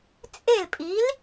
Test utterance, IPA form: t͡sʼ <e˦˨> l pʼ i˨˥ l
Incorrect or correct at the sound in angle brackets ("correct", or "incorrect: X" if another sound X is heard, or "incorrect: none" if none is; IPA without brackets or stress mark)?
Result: correct